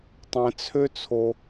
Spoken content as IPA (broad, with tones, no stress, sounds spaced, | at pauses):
tˤ ɛ̃˩ t͡sʰ ø˦ t͡sʰ o˨